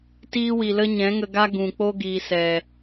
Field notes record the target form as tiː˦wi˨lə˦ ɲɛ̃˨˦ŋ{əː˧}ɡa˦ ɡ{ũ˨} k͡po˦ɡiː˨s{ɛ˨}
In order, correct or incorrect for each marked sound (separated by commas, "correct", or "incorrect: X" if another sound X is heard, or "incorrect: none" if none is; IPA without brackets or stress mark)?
incorrect: ə˧, correct, correct